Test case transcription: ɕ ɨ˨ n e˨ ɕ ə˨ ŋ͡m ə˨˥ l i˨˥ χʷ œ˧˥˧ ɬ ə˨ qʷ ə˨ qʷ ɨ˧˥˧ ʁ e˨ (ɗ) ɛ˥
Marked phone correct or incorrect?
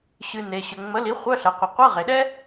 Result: correct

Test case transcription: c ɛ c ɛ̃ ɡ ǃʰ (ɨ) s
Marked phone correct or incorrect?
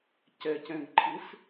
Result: correct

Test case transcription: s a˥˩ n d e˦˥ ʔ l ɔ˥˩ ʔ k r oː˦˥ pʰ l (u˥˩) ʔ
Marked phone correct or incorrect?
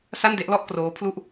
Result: correct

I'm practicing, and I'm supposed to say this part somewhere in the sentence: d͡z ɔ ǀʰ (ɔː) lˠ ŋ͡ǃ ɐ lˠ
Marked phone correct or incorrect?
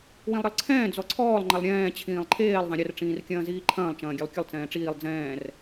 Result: correct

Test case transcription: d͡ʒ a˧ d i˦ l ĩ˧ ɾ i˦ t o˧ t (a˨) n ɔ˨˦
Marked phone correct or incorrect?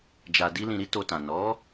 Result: incorrect: ã˨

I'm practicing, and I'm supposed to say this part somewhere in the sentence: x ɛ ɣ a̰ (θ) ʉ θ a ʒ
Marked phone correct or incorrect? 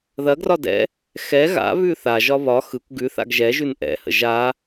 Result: incorrect: β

